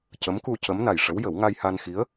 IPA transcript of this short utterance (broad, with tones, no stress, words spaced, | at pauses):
cə˧˥mku˧ cə˧˥mna˨˩jʂə˧˥w jə˨˩˦wŋa˧jha˧n xi˧˥ə̯